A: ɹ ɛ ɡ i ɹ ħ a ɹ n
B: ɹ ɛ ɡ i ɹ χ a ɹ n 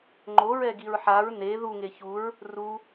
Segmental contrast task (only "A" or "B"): A